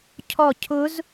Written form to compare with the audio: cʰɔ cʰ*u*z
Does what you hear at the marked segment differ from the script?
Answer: yes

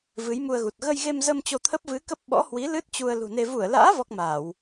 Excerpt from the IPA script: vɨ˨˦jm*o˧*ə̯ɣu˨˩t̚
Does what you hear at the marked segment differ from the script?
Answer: yes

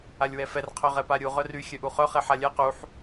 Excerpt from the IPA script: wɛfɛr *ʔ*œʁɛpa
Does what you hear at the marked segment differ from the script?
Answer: yes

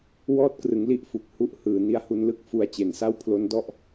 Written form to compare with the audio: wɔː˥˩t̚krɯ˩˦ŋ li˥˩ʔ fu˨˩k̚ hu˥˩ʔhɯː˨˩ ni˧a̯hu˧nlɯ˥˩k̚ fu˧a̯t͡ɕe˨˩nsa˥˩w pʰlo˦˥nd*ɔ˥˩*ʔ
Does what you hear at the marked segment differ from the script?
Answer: no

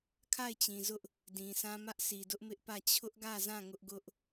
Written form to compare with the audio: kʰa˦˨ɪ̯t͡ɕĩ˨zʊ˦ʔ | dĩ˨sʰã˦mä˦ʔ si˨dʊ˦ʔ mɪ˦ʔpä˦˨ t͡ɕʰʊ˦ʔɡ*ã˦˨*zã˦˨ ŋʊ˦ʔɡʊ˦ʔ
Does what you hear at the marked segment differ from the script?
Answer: yes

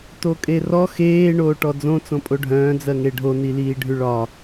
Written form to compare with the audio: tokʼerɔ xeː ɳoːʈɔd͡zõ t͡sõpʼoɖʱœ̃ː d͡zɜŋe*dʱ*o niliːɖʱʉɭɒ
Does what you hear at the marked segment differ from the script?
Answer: yes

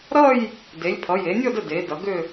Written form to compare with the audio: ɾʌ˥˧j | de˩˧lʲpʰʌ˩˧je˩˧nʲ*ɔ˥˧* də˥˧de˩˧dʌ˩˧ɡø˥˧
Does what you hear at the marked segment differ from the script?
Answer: no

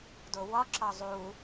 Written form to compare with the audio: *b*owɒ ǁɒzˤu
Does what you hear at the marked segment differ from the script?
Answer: yes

